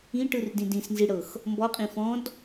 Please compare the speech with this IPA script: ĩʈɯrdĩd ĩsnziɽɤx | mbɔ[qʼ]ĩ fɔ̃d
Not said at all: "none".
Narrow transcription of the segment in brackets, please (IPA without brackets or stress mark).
qʼ